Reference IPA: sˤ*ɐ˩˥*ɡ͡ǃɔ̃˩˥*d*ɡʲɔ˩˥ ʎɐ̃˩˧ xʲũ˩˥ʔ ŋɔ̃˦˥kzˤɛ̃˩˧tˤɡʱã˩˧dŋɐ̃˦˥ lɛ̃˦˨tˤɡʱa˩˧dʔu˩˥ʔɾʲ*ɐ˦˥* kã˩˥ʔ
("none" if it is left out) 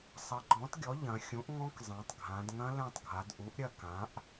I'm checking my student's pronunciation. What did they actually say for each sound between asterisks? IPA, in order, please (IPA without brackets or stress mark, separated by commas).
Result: ɐ˩˥, t, ɐ˦˨